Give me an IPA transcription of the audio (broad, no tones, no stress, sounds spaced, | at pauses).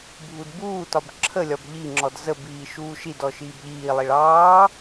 bʱ u d b uː t ɒ b ǁʰ ə lʲ ɒ b ʎ i ŋ͡ǁ ɔ d z ə b iː ʃ uː ʃ i d ɔ ʃ iː b ʎ iː lˠ i ɭ ɑː